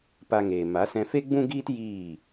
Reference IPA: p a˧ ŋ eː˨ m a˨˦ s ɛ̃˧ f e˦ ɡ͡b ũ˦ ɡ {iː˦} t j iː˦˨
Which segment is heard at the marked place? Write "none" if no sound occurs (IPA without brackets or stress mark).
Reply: iː˦